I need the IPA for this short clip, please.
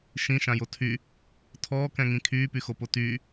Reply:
ʃ ĩ ʃ ã j o tʰ y | tʰ ɔː k ɛ̃ ŋ ĩ kʰ yː p y x o p o t yː

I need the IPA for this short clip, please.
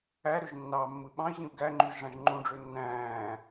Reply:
æ ɾ ø ʒ nː ɑ mː ɯ ɓ ɑ̃ i̯ ʑ ĩ u̯ ɡ æ ŋ͡ǃ y ʒ ʐ ɑ̃ ʒ ŋ͡ǃ ũ ɖ͡ʐ ø nː æ̃ː

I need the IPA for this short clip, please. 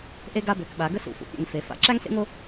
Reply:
ʔ e˦ ɡ a˦ b ø˩˧ k ɓ a˩˧ ɡ ə˦ s ṵ˩˧ f ṵ˩˧ pʲ ḛ˩˧ ŋ f e˩˧ f a̰˦ ǁ æ˦ ŋ s ḛ˦ ŋ o˦

